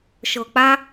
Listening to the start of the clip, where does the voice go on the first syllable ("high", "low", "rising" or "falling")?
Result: low